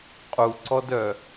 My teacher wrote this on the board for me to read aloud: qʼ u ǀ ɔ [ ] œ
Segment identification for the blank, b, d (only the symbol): d